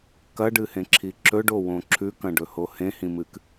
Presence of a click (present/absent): present